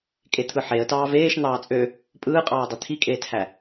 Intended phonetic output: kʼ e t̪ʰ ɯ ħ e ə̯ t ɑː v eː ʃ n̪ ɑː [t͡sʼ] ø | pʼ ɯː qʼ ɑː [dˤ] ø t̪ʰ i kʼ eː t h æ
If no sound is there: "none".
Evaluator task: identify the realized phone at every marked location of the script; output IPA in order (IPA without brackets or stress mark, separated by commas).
t͡sʼ, dˤ